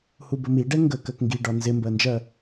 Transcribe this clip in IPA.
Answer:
h u b ə m i ɖ ɛ ŋ ɡ ə k ɜ k ŋ ɡ i ɖ ɒ n z ɪ m b ɜ n d͡ʒ ɜ

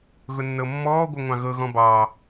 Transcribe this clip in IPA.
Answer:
ɣ ʊ nː ɤ mː ɔː ɡʷ ɤ ŋʷ ɑ̃ ɣ ɤ ɣ ɔ̃ b ɑː

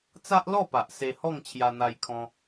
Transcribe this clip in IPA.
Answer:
t͡s a˦ ʔ l ɔ˥˧ p a˨ ʔ s e˧ h ɔ˥˧ ŋ t͡ɕʰ j a˧ n̪ a˧ j kʰ ɔ̃˧

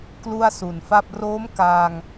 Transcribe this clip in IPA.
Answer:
k l u˥˩ a̯ s u˨˩ n f a˥˩ p̚ r oː˦˥ m k aː˧ ŋ

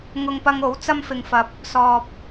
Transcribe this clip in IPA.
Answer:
ŋ ʊ˧ ŋ p ɐ˧ ŋ o˨˥ w t͡s ɐ˥ m f ɪ˧ ŋ f ɐ˧ p̚ | s ɔː˨ p̚

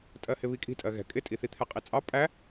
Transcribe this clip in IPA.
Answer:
tʼ ɜ h ɪ β i kʼ i̤ tʼ ɜ ɣ ɛ̤ kʼ ɪ tʼ i θ i t̪ʰ ɛ qʼ i t͡sʼ ɑ pʼ æ

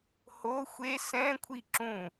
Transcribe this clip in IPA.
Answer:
h o xʷ e s ɛ̃ kʷʰ i ǁ ũ

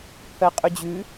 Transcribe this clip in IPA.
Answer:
pʰ ɜ qʼ ʉ d͡ʑ ʉ

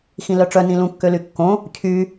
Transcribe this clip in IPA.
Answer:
x ĩ l œ ʈ͡ʂ œ n ĩ l ũ kː ø l y kː õ | cʰ y

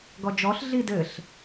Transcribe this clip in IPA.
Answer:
ɡ ɔ d͡ʒ ɔ ɬ ɮ i d ɘ ɬ

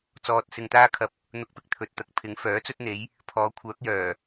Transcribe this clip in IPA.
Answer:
t͡s ɔː˧ t̚ s ɪ˧ ŋ t̪ aː˥ kʰ ɐ˧ p̚ | n̪ ʊ˧ k̚ p ɪ˧ k̚ t̪ʰ ɵ˨˥ t̚ t̪ ɐ˨˥ k̚ pʰ ɪ˨˥ ŋ f œː˨˥ t͡s ɵ˥ t̚ n̪ e˨˥ j | pʰ ɔː˨˧ kʷʰ œː˨˥ k̚ j œː˨˩

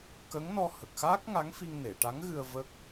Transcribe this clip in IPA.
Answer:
k ə˧˥ ŋ n ɔ˧ h ə˨˩ k̚ x aː˦˥ k̚ ŋ a˧˥ ŋ f i˧ ŋ n e˨˩˨ ʈ a˧˥ ŋ ɣ ɨ˧ ə̯ v ə˦˥ k̚

